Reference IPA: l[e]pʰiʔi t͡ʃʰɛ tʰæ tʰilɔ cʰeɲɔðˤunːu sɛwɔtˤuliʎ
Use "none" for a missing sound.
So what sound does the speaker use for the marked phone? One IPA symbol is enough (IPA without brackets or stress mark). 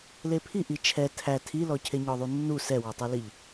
e